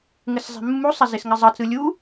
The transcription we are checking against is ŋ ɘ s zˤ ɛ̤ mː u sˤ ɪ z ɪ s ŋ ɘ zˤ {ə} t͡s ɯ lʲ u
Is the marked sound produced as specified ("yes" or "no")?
yes